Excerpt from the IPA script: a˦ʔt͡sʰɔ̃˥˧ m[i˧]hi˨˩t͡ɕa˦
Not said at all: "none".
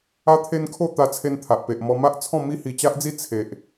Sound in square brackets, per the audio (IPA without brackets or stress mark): i˦